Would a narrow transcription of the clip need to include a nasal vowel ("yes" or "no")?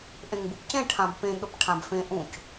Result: yes